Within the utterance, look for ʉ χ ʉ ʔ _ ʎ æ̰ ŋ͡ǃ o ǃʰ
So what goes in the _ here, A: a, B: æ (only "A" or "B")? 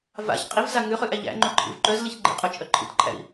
B